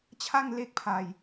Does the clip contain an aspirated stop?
yes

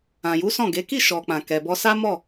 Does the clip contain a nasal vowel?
yes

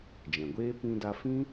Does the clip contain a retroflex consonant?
no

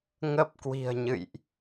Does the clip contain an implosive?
no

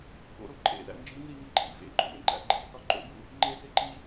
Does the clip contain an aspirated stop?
no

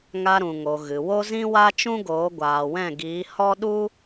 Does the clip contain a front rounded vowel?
no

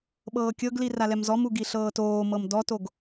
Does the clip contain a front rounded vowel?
no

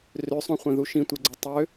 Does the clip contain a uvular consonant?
yes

